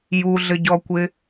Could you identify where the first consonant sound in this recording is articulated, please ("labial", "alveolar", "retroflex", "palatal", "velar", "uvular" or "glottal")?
palatal